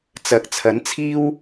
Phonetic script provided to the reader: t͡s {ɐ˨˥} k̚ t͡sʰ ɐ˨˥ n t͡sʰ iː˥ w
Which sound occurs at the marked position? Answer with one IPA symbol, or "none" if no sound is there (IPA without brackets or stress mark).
ɐ˨